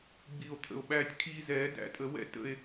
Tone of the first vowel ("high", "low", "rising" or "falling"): low